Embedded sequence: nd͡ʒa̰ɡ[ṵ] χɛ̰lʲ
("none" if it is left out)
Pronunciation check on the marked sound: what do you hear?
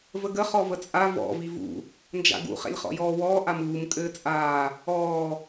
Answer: ṵ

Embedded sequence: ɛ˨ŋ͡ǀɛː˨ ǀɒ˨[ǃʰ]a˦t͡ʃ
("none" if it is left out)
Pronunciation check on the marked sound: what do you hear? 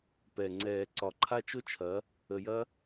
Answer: ǃʰ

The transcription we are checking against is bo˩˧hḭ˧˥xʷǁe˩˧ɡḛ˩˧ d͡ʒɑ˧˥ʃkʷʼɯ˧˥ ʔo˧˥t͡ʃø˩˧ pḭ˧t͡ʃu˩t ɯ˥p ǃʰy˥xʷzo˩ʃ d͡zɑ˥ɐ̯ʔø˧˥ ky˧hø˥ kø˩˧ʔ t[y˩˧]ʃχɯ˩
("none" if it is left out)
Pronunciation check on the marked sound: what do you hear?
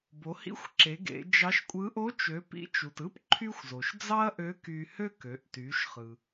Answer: y˩˧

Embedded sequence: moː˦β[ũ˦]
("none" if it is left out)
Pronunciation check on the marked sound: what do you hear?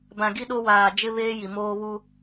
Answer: u˦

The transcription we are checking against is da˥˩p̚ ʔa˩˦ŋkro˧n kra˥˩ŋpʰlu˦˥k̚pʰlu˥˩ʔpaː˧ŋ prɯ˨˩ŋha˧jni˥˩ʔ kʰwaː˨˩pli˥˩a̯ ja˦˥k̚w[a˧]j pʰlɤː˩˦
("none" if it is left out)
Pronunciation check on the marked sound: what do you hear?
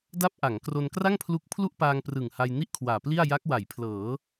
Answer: a˩˦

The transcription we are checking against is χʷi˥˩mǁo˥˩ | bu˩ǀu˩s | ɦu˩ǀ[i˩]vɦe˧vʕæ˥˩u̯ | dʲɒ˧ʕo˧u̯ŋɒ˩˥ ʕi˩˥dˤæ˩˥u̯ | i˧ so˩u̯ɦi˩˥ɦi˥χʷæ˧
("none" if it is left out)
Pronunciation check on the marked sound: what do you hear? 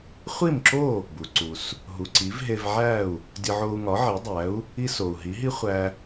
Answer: i˩˥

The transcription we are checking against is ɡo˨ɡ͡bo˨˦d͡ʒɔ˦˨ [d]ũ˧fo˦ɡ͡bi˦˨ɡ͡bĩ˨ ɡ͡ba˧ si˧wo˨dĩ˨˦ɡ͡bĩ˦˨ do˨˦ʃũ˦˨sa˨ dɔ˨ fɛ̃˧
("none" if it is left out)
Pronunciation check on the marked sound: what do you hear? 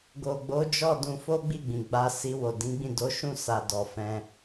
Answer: d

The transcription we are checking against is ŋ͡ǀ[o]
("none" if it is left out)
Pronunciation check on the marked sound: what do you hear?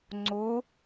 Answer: o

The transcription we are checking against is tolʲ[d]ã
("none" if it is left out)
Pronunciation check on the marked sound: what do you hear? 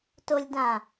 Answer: d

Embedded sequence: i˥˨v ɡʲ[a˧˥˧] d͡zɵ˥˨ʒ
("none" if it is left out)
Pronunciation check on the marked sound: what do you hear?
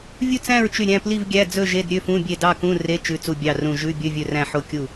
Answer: æ˧˥˧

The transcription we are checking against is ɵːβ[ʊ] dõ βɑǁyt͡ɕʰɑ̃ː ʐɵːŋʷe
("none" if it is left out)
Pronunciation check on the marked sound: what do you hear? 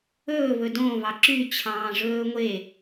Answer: ɵ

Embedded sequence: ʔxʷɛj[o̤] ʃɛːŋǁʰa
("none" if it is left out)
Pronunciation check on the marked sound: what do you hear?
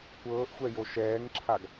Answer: o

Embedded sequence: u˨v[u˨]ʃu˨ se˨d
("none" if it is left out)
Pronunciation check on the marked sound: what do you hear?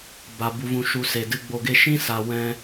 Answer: ũ˨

